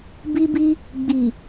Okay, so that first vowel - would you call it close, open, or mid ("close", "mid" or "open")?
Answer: close